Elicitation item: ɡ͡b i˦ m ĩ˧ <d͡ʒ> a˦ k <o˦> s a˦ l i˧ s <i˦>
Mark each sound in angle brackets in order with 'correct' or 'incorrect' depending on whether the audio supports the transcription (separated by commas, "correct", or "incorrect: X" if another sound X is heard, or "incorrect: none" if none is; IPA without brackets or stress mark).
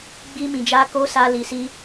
correct, correct, correct